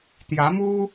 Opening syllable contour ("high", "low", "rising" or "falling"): rising